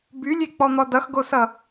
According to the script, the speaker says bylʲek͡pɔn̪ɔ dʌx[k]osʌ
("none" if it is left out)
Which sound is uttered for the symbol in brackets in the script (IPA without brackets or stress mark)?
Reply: ɡ